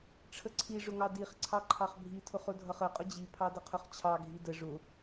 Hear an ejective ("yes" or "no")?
yes